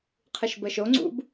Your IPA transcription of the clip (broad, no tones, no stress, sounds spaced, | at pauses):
qʰ ɨ ʃ b ə ʃ o ŋ͡ǀ ṵ b